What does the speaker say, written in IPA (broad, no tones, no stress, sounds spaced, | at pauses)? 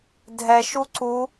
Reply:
dʱ ɛ ʃ u ǀ u